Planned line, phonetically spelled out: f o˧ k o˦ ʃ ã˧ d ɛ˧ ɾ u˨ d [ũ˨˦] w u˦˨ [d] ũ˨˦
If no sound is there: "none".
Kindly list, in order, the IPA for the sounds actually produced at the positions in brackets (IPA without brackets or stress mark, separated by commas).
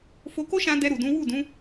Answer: ũ˨˦, d